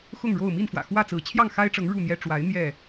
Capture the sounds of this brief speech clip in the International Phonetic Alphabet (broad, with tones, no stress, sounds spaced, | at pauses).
x ʊ˥˨ ŋ ɻ o˥˨ ʊ̯ m i˥˨ n f w ä̰˨˩ x w ä˥˨ t͡s ɹ̩˨˦ t͡ɕʰ j ɑ˥˨ ŋ x a˦ ɪ̯ ʈ͡ʂ ɤ˨˦ ŋ ɻ u˥˨ n̪ j ɛ˦ ʈ͡ʂ w a˨˦ ɪ̯ n̪ j ɛ˥˨